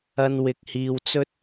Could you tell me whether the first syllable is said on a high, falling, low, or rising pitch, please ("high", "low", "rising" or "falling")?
high